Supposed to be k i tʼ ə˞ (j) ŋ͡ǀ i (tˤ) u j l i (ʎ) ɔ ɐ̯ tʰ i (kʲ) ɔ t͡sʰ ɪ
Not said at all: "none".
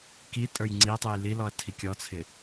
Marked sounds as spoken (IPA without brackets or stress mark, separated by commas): j, tˤ, l, kʲ